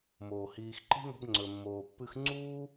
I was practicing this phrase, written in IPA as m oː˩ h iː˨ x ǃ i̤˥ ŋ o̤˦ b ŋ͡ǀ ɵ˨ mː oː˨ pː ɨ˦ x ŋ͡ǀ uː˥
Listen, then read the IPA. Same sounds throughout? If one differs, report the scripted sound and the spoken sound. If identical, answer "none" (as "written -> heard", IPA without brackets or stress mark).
none